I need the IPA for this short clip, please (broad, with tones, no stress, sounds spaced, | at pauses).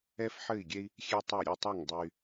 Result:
ɛ˦ f ħ ɘ˦˨ i̯ ɡʲ ɛ˦ i̯ | xʲ e˦ tˤ ɛ˦˨ ɾʲ ɘ˦˨ tˤ ɐ˦˨ ŋ dˤ ɘ˦ y̯